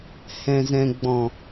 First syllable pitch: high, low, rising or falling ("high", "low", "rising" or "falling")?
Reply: low